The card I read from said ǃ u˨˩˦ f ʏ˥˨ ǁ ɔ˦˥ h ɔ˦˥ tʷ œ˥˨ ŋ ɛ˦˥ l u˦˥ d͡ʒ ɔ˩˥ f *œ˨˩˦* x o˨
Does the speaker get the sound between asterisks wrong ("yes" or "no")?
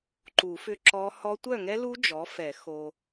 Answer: yes